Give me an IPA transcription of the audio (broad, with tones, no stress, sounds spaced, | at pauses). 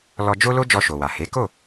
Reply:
l ɔ˧ d͡ʒ o˦ l o˦ d͡ʒ ɔ˧ ʃ o˨ w a˨ h e˨˦ k o˦˨